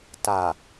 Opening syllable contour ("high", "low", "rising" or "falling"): low